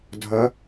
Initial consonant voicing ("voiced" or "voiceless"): voiced